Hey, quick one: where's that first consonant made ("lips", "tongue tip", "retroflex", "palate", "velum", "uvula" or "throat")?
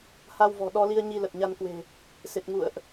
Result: throat